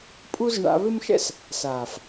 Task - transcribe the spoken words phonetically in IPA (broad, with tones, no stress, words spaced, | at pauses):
pʼu˦z ɳa̰˧βɪ˦mʃɛ̰˦s | saː˨f